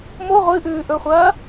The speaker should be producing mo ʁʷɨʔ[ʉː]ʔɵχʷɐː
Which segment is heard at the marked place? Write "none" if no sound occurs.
ʉː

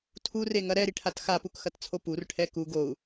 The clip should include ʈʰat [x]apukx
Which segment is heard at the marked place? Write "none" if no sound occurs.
x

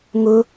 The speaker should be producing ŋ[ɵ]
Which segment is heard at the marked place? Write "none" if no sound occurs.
ʊ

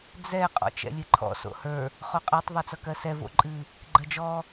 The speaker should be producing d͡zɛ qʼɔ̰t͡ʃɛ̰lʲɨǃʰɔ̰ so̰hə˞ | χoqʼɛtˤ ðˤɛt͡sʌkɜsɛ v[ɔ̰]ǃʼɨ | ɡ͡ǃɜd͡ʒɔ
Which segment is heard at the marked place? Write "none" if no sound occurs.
o̰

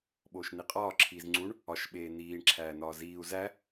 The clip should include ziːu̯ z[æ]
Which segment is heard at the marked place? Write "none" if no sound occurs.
æ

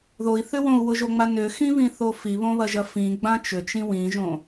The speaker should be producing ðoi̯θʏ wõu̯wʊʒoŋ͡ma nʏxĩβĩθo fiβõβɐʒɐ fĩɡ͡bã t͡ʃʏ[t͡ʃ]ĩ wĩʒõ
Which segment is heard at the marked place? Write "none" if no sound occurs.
t͡ʃ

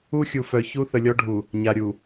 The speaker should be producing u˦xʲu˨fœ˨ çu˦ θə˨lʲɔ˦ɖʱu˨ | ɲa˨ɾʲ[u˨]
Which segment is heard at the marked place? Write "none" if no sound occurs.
u˨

